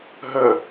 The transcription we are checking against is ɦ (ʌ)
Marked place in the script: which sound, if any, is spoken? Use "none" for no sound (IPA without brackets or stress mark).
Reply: ə